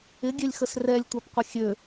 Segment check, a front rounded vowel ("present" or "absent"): present